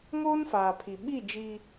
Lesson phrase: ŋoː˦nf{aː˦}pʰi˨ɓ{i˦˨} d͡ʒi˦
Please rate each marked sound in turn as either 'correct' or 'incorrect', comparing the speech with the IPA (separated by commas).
incorrect, correct